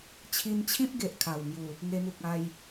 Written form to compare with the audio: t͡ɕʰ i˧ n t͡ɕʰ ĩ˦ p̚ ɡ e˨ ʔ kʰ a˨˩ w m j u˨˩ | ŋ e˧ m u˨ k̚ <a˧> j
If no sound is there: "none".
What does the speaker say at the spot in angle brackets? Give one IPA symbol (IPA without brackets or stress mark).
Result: a˧